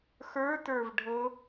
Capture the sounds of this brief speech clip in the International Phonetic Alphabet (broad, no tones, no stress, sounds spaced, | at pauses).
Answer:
x ə˞ t ə˞ v ɖʱ ɤ